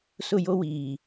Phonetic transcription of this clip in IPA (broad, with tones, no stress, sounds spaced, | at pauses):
s ʊ˦˨ j o˦ w iː˨